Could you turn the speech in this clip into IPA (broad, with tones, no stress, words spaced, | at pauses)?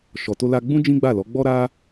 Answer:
ʃɔ˨to˧ la˧ɡ͡bũ˦ d͡ʒĩ˦ɡ͡ba˦˨lɔ˨˦ ɡ͡bɔ˦ɾa˦